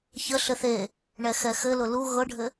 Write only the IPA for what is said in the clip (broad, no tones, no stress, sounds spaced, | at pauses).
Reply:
ç ə ɬ ɘ θ e | ɳ ɛ x ɛ x ɘ l ʊ l u ɣ ɤ ɖʱ ɘ